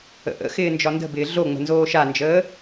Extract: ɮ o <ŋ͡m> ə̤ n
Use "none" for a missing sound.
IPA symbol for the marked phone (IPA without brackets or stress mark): ŋ͡m